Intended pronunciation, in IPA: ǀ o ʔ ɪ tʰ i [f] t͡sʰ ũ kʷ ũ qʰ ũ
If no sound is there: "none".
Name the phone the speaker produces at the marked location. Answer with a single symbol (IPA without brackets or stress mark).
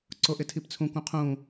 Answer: p